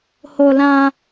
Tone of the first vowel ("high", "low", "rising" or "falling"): high